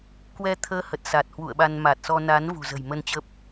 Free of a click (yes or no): yes